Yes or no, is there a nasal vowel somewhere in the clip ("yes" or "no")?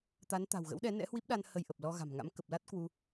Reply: no